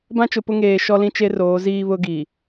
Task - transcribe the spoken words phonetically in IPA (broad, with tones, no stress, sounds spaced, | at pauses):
b ã˦ t͡ʃ ʊ˨ p ʊ˦ ŋ eː˨ ʃ ɔ˦ l ĩ˦ t͡ʃ e˦ r oː˨˦ z iː˦ β ʊ˦ ɡ i˨